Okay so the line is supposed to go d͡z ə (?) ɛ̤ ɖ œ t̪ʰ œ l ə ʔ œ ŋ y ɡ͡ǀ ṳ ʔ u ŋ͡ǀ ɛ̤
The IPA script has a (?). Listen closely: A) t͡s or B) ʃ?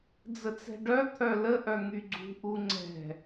A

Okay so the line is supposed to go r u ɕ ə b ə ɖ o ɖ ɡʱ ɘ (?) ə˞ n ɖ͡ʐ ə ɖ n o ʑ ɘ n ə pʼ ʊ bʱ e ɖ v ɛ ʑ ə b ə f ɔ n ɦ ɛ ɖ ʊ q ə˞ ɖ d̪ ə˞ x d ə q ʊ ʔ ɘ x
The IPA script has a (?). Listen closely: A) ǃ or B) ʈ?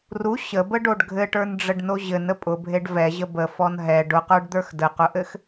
B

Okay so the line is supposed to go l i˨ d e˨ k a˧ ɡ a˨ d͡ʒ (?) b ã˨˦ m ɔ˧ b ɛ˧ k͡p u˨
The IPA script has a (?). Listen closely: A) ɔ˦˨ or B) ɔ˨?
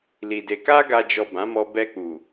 B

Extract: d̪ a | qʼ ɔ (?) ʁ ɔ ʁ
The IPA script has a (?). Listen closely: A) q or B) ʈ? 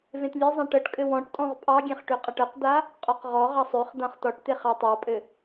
A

